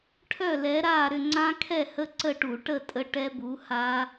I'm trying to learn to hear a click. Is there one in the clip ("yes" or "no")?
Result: yes